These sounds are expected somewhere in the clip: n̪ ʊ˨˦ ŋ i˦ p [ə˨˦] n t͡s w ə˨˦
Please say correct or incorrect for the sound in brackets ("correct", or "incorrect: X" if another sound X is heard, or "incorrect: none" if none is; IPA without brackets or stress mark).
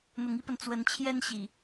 incorrect: ə˨